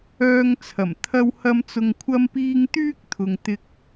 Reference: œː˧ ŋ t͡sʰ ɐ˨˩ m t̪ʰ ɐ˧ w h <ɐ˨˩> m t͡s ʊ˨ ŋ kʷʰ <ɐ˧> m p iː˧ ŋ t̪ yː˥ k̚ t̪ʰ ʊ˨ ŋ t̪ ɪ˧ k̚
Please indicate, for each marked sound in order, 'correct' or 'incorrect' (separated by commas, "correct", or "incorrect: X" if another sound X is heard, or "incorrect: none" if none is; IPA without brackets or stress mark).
incorrect: ɐ˧, correct